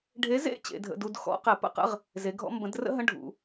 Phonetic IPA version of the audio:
ɖʱ e˨˥ z ḛ˦˥ t͡ɕ ḛ˨˥ dʱ ə̰˧˥˧ d u˧˥˧ d x ɔ̰˨˩˦ q ɛ˨˩˦ p ə̰˦˥ q ə̰˧˥˧ ʁ | z e˨˥ ɡʱ ɔ̰˦˥ m b ə̃˨˥ d r ə̰˦˥ ɦ ə̃˧˥˧ ɖʱ ṵ˨˩˦

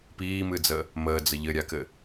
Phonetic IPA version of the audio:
p iː m ɨ d͡z əː | m əː d͡z ə ʎ ɘ ɾʲ a k ɘ

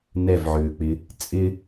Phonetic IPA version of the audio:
n ɛ v ʕ ʏː k͡p ɪ | t͡sʼ ɪ

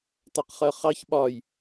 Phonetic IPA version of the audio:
t ɑ q χ ɜ χ ɑ ç ɓ ɒ j

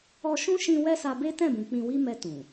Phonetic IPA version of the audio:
ɔ˧ ʃ ũ˦ ʃ ĩ˧ w ɛ˦ s a˧ b e˦ t ɛ̃˦˨ b ũ˨ k͡p ĩ˧ w i˦ m ɛ˧ t ũ˨

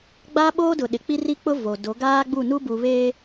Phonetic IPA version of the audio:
ɡ͡b aː˦ ɓ oː˦ d ʊ˨ ɗ ɪ˨ k͡p i˦ r i˦ k͡p ʊ˦ v o˨ d o˨˦ ɡ aː˦ ɡ͡b u˦˨ n u˦ b u˨ β eː˦

